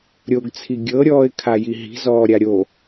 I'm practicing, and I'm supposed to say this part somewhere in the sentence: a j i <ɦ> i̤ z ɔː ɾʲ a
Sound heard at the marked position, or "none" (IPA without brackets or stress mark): ɦ